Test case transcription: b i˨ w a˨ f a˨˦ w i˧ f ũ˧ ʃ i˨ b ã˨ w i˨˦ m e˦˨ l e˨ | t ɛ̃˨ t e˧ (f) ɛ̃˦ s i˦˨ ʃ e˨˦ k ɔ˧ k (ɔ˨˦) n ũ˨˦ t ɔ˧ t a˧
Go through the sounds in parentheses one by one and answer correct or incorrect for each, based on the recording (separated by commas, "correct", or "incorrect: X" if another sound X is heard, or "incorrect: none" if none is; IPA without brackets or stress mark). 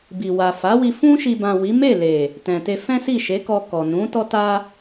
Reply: correct, incorrect: ɔ˨